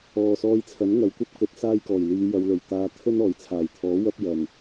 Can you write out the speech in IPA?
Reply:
ɔː˨sɔː˧jt͡sʰɐ˨˥n ŋɐ˨˧wkʷɐ˥p̚kɵ˨˥t̚ saː˥jkɔː˨˩j liː˨˧jɐ˨˧wlɵ˨˩ɥ t̪aː˧ t̪ʰɵ˥n ɔː˨˩jt͡sʰaː˨˩jt̪ʰɔː˨˥ wɐ˥p̚jɐ˨˩n

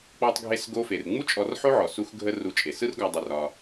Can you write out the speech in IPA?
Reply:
k͡pɔ˧tˤɡʱe˧s ɡo˧fe˩r ŋ͡mu˥ t͡ʃʼɔ˧rħo˥ʕɔ˩ su˧xɡʱə˧ ru˧t͡ʃʼe˩ sɯ˥r ɡɒ˧ dˤə˧rɒ˧

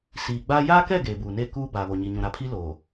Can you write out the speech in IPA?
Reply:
siː˨ɡ͡baː˦ jaː˦kɛ˦˨ ɡeː˨buː˨ne˦˨ kuː˦ baː˨βo˨ɲi˨ ɲũ˨ɾa˨pʰi˦ loː˨

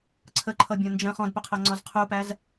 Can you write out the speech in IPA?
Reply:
ǀʰəǃʰʌbʲɔ̃ nd͡ʒə̃ χɔ̃dpɵqʰɤŋ͡ǀɔz qʰupæz

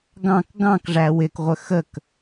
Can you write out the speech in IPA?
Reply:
ɡɑ̃k ɡɑ̃kʐæ wɪkʁʷə xək

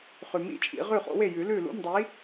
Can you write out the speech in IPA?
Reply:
χʉ˨mḭ˥˨t͡ʃʼḭ˨˩˦ ʁʉ˥˨χo̰˨˥we˥˨ jʉ˨˩˦lʉ˥˨lṵ˧˥˧m dˤi˨˥

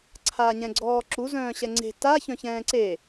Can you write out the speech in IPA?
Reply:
ǀʰaːɲɛ̃ɡ͡ǀɔːǁu zœ̃ːɕɛŋ͡ǀe̤ ta çœ̃çɛ̃ːǀe

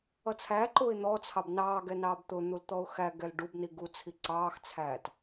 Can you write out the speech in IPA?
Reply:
ʌt͡sʰæǃʊːɪ̯ n̪ɔt͡sʰɑb nɑːɡɛ nɑːbt̪ʊn̪ul t̪ɔʊ̯xæɡɛl ɖub niɡut͡sʰi ǀɑːxt͡sʰæːt

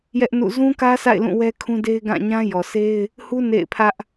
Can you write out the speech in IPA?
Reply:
jɛ˦ʔnṵ˦˨ zũ˦kä˦sa̰˦˨ɪ̯ lũ˦˨wɛ˦kʰũ˦de˦ɪ̯ ɡã˦˨ɲã˦ jɔ˨sʰe˦ɪ̯ | hu˦ nḛ˦˨ɪ̯pʰä˦ʔ

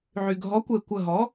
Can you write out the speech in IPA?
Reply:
ʕy˩ɡʱɔ˩˥kʷe˩ kʷə˧˩ɦɔ˩˥

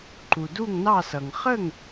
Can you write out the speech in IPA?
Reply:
ǃu˩du˥˩ŋnɑ˥˩sʌ˩ŋ χə˥˩ŋ

